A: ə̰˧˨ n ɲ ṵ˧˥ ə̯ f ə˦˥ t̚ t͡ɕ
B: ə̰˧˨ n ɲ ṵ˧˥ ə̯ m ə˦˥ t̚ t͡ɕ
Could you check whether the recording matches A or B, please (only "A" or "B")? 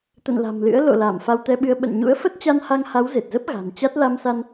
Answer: A